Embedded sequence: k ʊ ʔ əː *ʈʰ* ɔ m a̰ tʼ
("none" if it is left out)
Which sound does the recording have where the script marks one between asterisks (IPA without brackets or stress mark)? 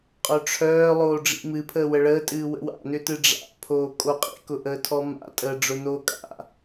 tʰ